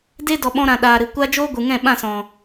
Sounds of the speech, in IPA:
d e˦ d ɔ˨ ɓ ɔ̃˧ ɾ ã˨ ɗ aː˨ ɾ ɨ˨ kʷ a˦ d͡ʒ oː˦ ɡʷ ɨ˨ ŋ ɛ̃˦˨ ɓ ã˦˨ s ɔ̃˨

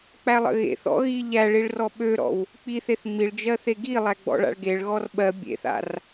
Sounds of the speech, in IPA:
k͡p æ lˠ ə̰ ɣ ḛ θ ɔ̰ ɣ i ʎ æ ɭ i ɭ r ɔ ɓ ø ɾ ɔ̰ w | k͡p i θ e θ ŋ͡m i ɭ d͡ʒ ɜ θ e ɡ i lˠ æ ɡ͡b ɔ̰ ɭ a̰ ɭ ɡ e ɭ ɣ ɔ r ɓ ɜ bʲ ḛ θ a̰ r

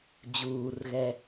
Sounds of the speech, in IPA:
d͡ʑ uː r ɣ ɛ

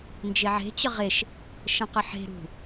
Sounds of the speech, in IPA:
n d͡ʒ e ʕ e̤ t͡ɕ ə ʁ e ʃ | ʃ ə̃ q ə ħ e̤ ɾ ṳ

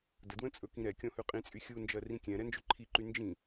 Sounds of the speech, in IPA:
d ə d w ə̃ t͡sʼ ɵ k ĩ ɾ ɛ kʲ ɔ̃ h ʉ qʼ ĩ t͡sʼ y xʲ u n d͡ʒ ɜ r ĩ kʲ ɛ̃ ɾ ɛ n d͡ʒ ɵ ǃʰ i ǃ y n d͡ʒ ĩ

